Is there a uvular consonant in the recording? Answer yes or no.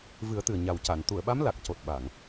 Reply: no